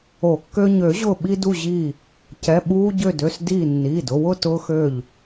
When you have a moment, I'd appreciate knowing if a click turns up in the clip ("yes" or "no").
no